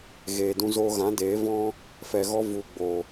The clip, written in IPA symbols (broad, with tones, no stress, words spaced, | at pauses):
ɣeː˨dũ˧zoː˧ɣã˨˦ deː˨˦vɔ̃˦ | fɛ˨ɣɔ˧ vu˨ɡ͡bo˨